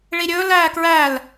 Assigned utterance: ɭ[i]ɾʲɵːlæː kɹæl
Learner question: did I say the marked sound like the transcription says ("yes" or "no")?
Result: yes